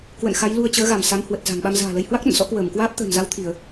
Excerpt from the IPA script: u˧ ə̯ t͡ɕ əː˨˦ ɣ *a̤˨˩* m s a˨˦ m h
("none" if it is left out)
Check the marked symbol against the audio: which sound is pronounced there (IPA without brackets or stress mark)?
a˧˩